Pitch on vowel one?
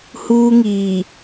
high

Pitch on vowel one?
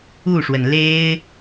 falling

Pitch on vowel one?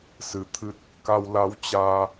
rising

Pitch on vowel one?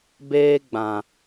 high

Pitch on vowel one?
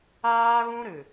high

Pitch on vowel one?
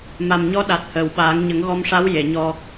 low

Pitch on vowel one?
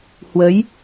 rising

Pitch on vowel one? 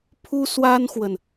high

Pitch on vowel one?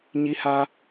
high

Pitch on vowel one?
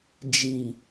low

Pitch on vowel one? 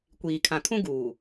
low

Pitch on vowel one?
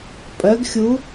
rising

